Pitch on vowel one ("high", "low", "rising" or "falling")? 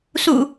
low